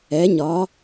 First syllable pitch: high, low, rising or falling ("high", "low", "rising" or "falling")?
rising